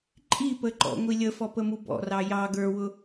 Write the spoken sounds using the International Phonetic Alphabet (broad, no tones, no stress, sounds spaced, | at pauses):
ǃʼ i p ə ǃ ɔ̰ ŋʷ i lʲ ə f ɔ p ə m u b ɔ̰ r ɑ j ɑ ɡ ə˞ w ʊ